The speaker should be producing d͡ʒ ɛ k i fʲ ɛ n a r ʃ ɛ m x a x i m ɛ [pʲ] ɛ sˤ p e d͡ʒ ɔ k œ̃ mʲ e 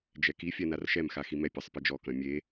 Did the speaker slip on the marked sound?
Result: no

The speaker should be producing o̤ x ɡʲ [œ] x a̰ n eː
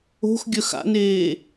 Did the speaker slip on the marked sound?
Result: no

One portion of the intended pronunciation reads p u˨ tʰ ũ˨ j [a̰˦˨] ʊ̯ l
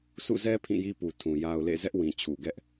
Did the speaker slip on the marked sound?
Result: yes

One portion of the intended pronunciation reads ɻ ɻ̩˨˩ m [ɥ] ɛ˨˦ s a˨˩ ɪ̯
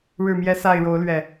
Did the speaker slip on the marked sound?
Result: yes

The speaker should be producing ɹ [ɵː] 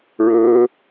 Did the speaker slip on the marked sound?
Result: no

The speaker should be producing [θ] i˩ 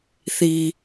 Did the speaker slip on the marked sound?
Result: no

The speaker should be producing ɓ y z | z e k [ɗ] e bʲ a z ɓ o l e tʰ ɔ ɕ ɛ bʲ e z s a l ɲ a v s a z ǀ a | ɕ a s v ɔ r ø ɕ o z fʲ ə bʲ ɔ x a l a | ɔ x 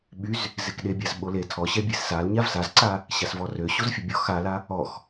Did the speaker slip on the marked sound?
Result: no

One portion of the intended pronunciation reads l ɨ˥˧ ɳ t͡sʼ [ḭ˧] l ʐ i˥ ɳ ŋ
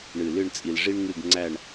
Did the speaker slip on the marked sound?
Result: yes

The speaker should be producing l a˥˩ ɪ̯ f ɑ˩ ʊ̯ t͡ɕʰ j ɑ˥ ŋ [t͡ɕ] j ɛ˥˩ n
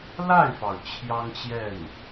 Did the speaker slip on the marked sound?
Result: no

